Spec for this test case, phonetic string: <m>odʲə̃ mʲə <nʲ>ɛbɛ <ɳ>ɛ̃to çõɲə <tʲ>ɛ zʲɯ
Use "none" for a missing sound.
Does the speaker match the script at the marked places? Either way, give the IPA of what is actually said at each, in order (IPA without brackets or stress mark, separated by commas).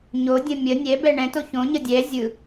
ɲ, nʲ, ɳ, dʲ